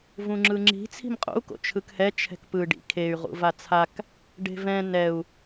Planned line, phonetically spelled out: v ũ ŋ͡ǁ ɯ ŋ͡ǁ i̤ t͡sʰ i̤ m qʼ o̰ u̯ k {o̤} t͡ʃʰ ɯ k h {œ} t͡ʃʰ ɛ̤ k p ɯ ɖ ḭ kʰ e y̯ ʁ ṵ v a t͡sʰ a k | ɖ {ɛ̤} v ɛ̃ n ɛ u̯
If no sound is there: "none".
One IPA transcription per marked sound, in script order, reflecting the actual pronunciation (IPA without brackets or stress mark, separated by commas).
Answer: o̰, ɛ, e̤